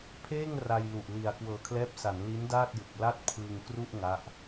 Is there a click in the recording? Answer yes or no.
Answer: no